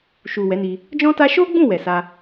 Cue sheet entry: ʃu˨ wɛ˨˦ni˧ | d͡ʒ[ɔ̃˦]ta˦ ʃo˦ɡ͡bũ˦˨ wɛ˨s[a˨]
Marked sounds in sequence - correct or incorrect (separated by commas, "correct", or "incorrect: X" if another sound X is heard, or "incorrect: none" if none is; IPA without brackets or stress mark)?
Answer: correct, incorrect: a˧